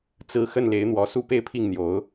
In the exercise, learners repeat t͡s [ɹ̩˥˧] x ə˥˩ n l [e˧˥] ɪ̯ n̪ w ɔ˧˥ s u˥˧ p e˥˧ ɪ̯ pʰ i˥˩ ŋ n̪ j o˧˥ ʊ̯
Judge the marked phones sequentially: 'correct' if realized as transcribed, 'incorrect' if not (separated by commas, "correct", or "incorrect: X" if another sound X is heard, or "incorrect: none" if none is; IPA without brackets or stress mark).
correct, correct